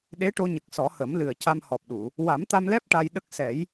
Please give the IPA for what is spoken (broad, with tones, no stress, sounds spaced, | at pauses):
ɗ e˧˥ ʈ o˧ ɲ ə˨˩ k̚ s ɔ˨˩˦ h ə˨˩˦ m l ɨ˨˩ ə̯ c a˧ m h ɔ˨˩ p̚ ɗ u˨˩˨ | w a˨˩˦ m t̪ a˧ m l ɛ˦˥ p̚ ʈ a˧ j ɗ ə˦˥ k̚ s ɛ˨˩˦ j